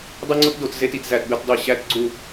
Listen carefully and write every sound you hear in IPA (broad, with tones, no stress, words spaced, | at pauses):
dˤe˦ŋ͡ǀo˦tdo˦˨t ze˦ti˨tzæ˦˨tbe˦t dˤi˦˨ ɕæ˦tɡ͡ǀu˦˨